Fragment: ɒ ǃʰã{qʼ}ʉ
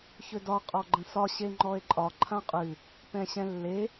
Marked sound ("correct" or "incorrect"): correct